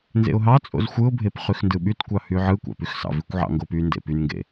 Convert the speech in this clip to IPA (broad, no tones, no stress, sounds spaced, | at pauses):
n z ḛ ʊ̯ ɦ ɑ t͡sʼ o̰ z xʷ ɯ ʊ̯ bʱ e p χ y x n d ɯ ɓ y t kʷ ɑ h y ʕ ɯ kʷ ɑ̰ p y x s ɑ̰ v i kʷ ʕ ɑ̰ ŋ ɡ o p y n d ḛ p y n ŋ ɡ ḛ